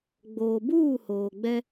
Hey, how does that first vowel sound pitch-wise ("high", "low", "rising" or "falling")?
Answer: low